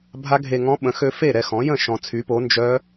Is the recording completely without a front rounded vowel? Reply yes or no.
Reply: no